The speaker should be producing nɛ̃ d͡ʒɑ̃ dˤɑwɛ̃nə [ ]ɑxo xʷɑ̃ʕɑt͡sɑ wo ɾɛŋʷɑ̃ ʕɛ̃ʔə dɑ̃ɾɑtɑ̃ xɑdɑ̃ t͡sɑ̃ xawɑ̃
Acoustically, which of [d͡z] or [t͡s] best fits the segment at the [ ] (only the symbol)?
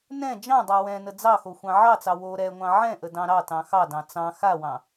d͡z